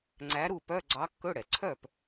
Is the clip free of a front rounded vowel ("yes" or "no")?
no